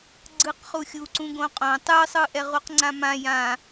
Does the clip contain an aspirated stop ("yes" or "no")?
no